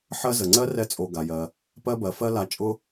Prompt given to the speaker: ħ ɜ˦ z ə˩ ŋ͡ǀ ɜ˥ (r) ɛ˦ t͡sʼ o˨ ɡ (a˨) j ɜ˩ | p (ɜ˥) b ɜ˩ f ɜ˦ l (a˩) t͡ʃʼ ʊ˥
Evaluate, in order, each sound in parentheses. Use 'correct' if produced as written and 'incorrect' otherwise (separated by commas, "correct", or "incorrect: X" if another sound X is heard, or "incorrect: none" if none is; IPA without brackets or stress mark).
correct, incorrect: a˩, incorrect: ɜ˦, incorrect: a˨